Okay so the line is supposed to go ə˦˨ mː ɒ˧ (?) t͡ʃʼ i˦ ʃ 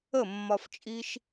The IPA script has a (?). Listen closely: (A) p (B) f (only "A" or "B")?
B